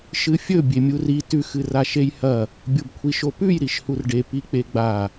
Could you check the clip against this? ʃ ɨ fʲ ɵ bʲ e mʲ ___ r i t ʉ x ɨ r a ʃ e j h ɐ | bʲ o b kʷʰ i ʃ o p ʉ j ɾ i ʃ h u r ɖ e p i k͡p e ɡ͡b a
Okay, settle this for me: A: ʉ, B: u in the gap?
B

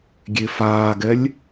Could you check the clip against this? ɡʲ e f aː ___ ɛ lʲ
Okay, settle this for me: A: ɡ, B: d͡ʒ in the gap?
A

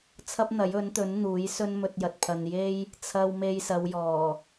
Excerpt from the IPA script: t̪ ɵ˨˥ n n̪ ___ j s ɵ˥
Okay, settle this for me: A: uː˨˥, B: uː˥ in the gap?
A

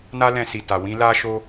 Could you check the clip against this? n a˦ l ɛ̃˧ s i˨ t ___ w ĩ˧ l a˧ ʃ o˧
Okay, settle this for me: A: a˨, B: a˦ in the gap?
A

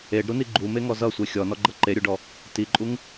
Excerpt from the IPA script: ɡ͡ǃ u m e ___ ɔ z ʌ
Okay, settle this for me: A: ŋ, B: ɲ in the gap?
A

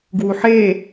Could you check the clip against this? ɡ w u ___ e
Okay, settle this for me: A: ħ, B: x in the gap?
A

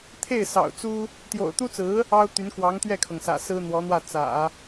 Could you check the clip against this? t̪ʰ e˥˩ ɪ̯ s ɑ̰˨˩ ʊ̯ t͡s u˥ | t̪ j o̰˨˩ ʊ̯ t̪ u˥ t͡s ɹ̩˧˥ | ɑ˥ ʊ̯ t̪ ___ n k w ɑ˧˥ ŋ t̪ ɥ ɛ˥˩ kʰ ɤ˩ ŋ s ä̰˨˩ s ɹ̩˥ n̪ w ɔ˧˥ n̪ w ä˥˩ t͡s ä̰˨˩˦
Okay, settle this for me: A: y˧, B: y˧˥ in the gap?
B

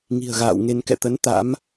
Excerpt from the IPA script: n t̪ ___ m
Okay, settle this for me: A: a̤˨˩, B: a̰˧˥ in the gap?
B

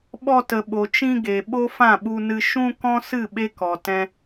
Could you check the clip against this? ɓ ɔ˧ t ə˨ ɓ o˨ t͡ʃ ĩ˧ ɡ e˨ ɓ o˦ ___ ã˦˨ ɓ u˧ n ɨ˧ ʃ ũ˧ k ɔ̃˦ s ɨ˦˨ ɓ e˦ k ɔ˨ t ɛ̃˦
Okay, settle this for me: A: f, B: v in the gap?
A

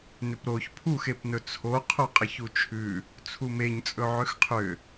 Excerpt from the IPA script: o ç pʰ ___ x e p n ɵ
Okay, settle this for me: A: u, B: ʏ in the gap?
A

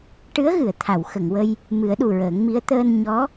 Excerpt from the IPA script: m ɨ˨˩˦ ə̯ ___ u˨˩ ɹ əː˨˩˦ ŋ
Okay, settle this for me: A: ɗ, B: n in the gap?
A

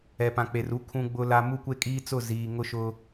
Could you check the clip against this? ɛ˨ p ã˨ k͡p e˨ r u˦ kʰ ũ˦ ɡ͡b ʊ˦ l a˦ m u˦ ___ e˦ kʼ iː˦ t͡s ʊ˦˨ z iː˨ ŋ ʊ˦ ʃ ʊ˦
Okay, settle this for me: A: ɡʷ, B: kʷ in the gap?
B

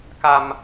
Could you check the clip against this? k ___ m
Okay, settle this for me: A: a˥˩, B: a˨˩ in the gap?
B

